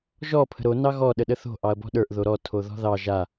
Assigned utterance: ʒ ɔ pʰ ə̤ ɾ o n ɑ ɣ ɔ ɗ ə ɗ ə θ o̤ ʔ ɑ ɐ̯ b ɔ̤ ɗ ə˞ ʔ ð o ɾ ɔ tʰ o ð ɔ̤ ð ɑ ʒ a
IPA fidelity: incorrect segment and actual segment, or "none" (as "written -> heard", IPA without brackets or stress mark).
none